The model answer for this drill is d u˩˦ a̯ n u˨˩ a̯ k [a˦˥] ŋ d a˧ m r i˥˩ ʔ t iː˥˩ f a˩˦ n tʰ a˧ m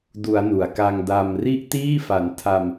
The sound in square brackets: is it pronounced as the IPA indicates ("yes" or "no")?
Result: no